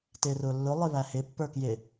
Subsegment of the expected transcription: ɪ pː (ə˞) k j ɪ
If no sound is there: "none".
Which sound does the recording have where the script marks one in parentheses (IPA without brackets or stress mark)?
ə˞